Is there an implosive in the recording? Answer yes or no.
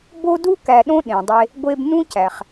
yes